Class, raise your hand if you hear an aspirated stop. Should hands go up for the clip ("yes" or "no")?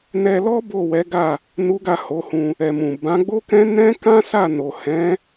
no